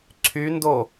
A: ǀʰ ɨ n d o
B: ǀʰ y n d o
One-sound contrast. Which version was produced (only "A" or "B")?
B